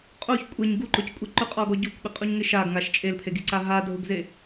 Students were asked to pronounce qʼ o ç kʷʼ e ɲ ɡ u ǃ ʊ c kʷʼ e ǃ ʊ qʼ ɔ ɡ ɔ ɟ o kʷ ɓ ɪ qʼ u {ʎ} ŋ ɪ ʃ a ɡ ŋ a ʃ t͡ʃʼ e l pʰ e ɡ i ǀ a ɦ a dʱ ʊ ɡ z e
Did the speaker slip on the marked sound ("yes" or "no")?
yes